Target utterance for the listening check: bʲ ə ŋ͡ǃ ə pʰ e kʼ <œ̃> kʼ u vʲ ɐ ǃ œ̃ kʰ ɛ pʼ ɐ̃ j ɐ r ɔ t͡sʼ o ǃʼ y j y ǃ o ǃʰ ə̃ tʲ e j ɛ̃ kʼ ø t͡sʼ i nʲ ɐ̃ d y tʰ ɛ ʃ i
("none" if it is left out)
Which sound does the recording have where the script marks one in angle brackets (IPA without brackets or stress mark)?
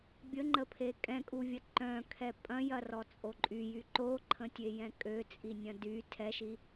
ɛ̃